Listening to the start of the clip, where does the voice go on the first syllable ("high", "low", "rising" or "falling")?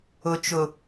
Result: low